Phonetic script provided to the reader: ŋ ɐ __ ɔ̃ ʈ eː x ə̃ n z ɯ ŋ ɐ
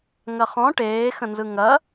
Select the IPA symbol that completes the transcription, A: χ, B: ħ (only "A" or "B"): A